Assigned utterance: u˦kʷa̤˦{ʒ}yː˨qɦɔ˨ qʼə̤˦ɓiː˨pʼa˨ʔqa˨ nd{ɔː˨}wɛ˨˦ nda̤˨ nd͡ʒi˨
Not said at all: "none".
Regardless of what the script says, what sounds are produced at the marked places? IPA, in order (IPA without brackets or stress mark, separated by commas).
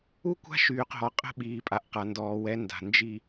ʃ, ɔː˨